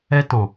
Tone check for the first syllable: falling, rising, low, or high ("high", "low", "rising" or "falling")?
high